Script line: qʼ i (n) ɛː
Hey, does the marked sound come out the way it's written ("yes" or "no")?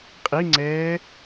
no